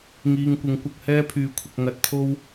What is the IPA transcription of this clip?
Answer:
ŋ iː˧ ŋ kʷ ɪ˨˥ ŋ kʷ ɐ˨˥ k̚ h ɛː˥ pʰ yː˧ kʷʰ ɪ˧ k̚ ŋ ɐ˧ t̚ t̪ʰ o˥ w

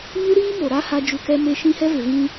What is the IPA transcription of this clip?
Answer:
ɲ u˦ ɾ iː˦ m o˨ ɾ a˦ h a˦ d͡ʒ u˦ k ɛ˦ m e˦ ʃ ĩ˦ h ɛ˦ v ɪ˨ v ĩ˦

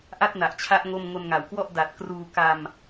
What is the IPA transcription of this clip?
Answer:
ʔ a˥˩ t̚ n a˨˩ ʔ t͡ɕʰ a˦˥ ʔ ŋ o˥˩ m ŋ o˧ n ŋ a˩˦ w k w ɔ˥˩ ʔ d a˨˩ t̚ k r uː˧ k a˧ m

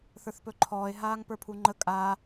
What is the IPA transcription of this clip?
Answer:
θ ə˞ θ p ɵ ǃʰ ɔː e̯ ɦ aː ŋ p ə˞ pʰ u ŋ͡ǃ ə kʼ a

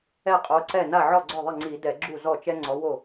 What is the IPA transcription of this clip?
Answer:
ɛ˥˩ qʼ o˨˦ ǀ ɛ˥˩ n a˥˩ ʕ ɔ˥˩ ɡ͡ǀ ɔ˥˩ ðˤ ɪ˥˩ ŋ͡ǀ i˧˩˧ d ɛ˧˩˧ ɡ͡ǁ u˥˩ z ɔ˥˩ t͡ʃ ɛ˥ ŋ͡ǀ ɔ˨˦ w o˥˩

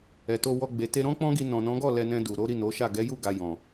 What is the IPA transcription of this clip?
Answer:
ɛ˨ t o˧ w ɔ˧ ɡ͡b e˨ t e˧ ɾ ɔ̃˦ k͡p ɔ̃˦ ɡ i˧ n ɔ̃˨ n ɔ̃˨˦ ɡ ɔ˦˨ l ɛ˧ n ɛ̃˧ d u˨ ɾ o˨˦ ɾ i˦˨ n o˨˦ ʃ a˦˨ ɡ ɛ˨˦ j u˦˨ ɡ a˨ j ɔ̃˨

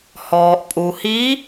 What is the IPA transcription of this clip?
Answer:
h ɔː˩ ʔ pʼ u˩ h i˧˥

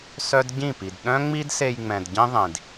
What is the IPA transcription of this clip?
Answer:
s œ˦ d ɟ ĩ˦˨ p i˨ d ɗ œ̃˦ ŋ͡m i˦ d s e˧ j ŋ͡m ɛ̃˨ d ɟ ĩ˦ ðˤ ĩ˨ d

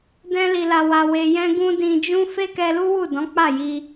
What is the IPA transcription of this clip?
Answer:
d ɛ̃˦ l i˧ l a˧ w a˧ w e˧ j ɛ̃˦ ɡ ũ˦ d ĩ˧ d͡ʒ ũ˦ f e˦ k ɛ˧ l u˦ w u˦˨ d ɔ̃˨˦ k͡p a˦˨ j i˧

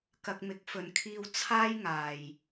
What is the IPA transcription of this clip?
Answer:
k ɐ˧ k̚ m ɪ˨˥ k̚ f ɵ˨ n kʰ iː˧ w t͡sʰ aː˥ j ŋ aː˨ j

